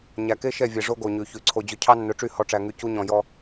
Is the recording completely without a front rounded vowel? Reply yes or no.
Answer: no